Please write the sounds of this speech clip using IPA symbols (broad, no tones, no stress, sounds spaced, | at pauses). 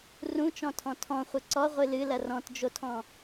r ũ t͡ʃ ɔ̃ tʰ ɔ̃ tʰ ɔ̃ χʷ ɨ ǀ ɔ ʁʷ ɨ l ɨ l ɐ r ɔ̃ t d͡ʒ o tʰ ɔ̃